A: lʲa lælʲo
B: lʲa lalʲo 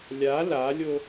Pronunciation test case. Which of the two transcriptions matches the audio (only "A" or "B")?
B